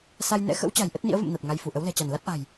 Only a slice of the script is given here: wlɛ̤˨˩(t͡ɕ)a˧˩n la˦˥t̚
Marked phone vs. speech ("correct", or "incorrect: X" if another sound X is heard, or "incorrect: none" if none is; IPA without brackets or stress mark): correct